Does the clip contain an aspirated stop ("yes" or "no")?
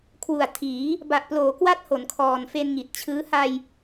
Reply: yes